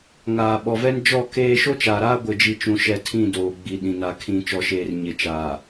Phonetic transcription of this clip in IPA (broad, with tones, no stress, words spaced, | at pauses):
ŋaː˨ɓɔ˨vɛ˦nd͡ʒɔ˦˨ keː˦ ʃo˦t͡ʃaː˨ɾaː˦ ɡʷɪ˨d͡ʒi˨t͡ʃũ˨ʃɛ˨ tʰĩ˦˨doː˨ ɡ͡bi˨ɗĩ˨ na˨kʰĩ˨t͡ʃɔ˨ʃeː˨r ɲɪ˨t͡ʃa˨